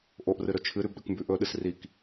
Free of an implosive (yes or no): no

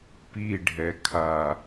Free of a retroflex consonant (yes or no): no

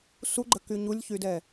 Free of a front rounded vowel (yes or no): no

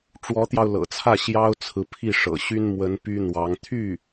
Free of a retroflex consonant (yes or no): no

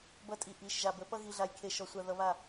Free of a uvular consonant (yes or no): yes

